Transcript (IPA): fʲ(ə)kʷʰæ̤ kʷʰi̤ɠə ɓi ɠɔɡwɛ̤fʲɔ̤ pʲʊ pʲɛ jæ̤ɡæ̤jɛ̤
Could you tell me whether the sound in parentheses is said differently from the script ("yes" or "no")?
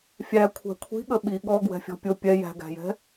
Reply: yes